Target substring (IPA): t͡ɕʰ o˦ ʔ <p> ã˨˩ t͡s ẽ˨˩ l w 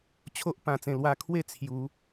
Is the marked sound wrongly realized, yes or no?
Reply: no